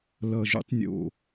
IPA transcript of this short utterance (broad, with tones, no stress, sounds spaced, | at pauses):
l ʌ˨˩ ʒ ṵ˧˥ tˤ nʲ o̰˨˩